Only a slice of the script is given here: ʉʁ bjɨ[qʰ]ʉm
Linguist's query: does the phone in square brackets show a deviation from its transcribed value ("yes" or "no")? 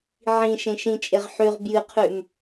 no